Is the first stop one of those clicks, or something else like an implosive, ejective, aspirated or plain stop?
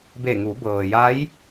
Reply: plain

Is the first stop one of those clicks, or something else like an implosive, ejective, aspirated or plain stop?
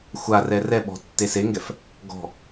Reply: implosive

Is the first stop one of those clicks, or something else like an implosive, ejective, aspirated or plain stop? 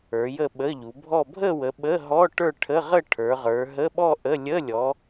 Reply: implosive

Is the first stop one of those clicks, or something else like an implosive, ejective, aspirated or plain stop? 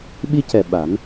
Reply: implosive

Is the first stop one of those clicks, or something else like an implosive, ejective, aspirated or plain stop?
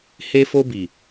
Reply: plain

